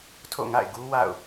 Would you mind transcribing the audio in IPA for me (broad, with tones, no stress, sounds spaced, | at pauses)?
tʰ o̰˦˨ ŋ a̰˦˨ ɪ̯ ɡ u˦ w a̰˦˨ ʊ̯